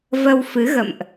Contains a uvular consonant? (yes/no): no